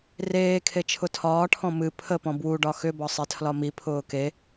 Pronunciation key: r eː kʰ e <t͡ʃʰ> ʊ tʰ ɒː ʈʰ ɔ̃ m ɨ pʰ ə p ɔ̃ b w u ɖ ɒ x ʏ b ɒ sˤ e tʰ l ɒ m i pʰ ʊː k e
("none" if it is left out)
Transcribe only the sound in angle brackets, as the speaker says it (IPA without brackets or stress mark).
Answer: t͡ʃʰ